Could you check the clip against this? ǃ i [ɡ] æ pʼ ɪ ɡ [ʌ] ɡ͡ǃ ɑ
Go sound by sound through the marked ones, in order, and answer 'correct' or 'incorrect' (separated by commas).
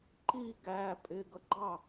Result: correct, correct